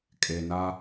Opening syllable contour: low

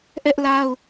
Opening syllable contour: high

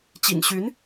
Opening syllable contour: low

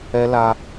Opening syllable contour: high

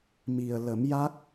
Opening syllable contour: low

